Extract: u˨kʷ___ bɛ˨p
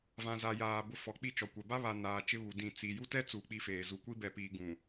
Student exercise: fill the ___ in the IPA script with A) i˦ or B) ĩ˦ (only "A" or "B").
A